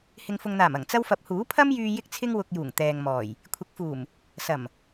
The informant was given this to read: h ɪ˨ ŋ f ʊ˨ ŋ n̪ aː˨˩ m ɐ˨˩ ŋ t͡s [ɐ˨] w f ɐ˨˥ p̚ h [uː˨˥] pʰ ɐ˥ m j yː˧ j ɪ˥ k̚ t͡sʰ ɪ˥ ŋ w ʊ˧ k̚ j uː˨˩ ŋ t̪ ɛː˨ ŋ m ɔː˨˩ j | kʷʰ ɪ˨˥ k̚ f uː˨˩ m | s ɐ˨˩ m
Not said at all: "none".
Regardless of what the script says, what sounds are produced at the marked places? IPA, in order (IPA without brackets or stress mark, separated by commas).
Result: ɐ˥, uː˨˥